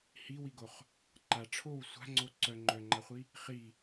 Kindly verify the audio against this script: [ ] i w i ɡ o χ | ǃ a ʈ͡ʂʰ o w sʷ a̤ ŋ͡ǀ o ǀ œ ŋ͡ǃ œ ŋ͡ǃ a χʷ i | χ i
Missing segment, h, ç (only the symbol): h